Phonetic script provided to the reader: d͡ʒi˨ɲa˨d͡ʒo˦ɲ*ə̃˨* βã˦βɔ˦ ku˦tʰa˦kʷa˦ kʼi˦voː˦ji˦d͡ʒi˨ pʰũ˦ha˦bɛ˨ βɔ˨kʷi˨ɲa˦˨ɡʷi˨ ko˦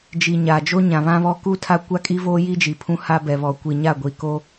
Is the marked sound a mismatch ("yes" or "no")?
yes